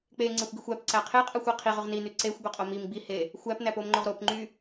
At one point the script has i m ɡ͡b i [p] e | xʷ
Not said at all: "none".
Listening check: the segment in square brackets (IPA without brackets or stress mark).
h